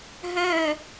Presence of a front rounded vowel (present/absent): present